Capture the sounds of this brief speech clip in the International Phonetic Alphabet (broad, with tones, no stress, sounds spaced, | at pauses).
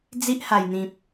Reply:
d͡z i˦ ʔ h a˨˩ j n̪ ĩ˨ p̚